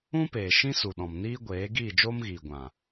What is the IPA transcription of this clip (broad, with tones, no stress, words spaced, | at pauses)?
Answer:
ũ˦peː˨ ʃĩ˦su˨ɗɔ̃˨m niː˦ɡʷeː˨˦ ɡiː˦˨d͡ʒoː˦mɣiː˨ɡʷã˨